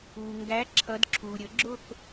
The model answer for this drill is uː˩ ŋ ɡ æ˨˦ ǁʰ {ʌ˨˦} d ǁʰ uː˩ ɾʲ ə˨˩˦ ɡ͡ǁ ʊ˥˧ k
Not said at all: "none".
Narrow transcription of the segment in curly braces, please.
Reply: ʌ˨˦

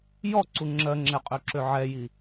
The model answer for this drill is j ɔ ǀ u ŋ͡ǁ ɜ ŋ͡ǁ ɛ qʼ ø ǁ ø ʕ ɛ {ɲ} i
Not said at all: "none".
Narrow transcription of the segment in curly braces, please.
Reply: j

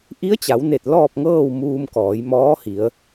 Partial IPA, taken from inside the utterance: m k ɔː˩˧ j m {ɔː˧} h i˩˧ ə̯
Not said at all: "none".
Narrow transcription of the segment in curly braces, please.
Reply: ɔː˧˥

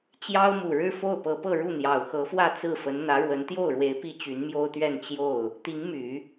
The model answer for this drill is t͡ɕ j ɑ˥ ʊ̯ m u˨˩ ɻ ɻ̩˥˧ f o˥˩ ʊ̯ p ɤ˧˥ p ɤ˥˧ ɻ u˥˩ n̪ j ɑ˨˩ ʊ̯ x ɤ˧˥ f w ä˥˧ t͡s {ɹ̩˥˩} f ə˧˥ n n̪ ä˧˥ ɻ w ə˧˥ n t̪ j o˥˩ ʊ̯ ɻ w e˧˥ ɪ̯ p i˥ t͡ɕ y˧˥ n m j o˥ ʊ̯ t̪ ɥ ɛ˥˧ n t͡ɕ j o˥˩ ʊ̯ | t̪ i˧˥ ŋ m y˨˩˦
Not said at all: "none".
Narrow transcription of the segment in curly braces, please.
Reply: ɹ̩˥˩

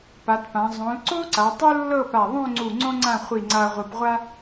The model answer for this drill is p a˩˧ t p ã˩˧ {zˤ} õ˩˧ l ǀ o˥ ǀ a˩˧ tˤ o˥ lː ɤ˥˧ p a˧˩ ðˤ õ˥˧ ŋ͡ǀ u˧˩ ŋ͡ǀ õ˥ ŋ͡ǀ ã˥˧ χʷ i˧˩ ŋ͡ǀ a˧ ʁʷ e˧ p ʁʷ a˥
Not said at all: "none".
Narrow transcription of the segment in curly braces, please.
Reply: zˤ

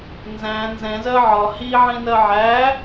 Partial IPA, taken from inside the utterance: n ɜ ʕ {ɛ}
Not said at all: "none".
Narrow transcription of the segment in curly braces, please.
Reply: æ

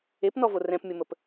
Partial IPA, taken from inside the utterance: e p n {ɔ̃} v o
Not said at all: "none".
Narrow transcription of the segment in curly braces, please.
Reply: ɔ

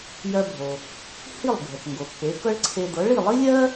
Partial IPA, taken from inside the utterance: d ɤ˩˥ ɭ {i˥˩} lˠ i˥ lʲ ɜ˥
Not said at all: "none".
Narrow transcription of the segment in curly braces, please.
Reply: i˥˩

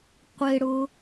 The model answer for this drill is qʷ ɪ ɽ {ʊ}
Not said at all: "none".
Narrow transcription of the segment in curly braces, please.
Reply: ʊ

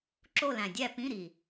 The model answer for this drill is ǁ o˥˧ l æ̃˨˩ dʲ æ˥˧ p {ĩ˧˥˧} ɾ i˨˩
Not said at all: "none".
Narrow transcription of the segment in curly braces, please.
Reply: ĩ˧˥˧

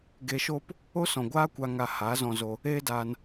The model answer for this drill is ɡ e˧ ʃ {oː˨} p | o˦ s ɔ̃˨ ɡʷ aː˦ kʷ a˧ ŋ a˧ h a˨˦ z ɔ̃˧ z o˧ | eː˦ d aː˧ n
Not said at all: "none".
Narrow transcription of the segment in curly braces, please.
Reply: oː˦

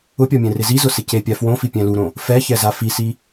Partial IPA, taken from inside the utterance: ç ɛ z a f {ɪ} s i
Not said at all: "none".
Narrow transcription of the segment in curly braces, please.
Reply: i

